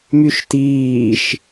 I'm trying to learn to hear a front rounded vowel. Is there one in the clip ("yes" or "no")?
yes